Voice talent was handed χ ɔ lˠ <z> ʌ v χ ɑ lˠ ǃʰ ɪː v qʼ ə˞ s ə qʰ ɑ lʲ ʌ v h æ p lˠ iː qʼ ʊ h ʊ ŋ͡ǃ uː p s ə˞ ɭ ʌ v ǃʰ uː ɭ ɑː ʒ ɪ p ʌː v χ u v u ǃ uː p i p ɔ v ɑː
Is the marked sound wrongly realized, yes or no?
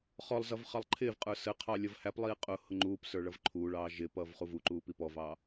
no